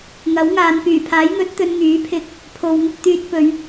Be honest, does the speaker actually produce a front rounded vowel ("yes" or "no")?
yes